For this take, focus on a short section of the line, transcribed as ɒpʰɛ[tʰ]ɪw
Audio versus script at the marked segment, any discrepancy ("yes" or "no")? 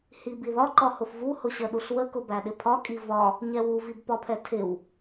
no